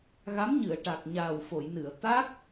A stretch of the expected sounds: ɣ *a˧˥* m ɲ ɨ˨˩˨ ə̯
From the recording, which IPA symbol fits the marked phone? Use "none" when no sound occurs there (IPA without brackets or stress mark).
a˧˥